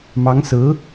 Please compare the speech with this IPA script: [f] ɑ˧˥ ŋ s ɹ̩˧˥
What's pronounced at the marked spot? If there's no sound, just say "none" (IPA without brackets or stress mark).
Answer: m